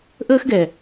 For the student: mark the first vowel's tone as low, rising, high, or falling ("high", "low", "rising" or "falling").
high